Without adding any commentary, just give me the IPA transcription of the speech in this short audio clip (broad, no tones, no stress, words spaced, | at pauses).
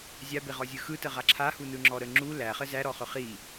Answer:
zʲabeʁɔzʲɯ xɯtəʁa ǁʰahunɯŋ͡ǁɔ ɾə ŋ͡ǁu læχə zæɾɔχɵ χi